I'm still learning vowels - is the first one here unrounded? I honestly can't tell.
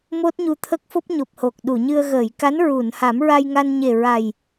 no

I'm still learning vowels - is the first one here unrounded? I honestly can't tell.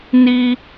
yes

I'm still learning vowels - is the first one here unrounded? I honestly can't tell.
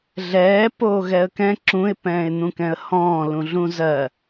yes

